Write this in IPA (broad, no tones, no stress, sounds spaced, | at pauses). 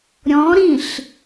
ɾʲ ɔ̃ ɾ ĩ ɬ